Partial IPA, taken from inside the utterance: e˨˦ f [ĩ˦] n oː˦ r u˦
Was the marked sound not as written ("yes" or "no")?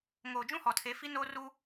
yes